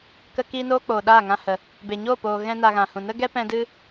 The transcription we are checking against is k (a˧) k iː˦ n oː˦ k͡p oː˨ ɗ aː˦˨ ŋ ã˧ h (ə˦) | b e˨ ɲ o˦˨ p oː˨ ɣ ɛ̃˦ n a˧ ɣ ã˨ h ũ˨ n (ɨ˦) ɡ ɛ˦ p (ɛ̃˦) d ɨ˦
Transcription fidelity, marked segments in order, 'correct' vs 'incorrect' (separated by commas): incorrect, incorrect, incorrect, incorrect